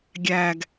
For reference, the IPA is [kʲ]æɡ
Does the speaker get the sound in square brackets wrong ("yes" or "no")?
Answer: yes